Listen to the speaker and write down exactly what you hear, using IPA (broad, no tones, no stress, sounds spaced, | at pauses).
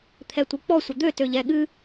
t̪ʰ ɛ tʷ ɨ k͡p ɔ sʷ ə d̪ ø t ø ʎ ɛ ɠ ɨ